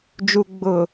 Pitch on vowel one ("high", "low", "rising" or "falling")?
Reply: low